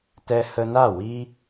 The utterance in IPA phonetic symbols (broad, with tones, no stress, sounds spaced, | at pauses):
t ɛ˧ h ə˧ n a˦˨ w i˦